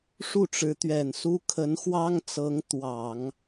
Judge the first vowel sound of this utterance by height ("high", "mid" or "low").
high